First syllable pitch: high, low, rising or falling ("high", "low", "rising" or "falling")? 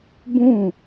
falling